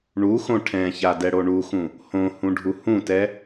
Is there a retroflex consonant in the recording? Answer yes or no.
yes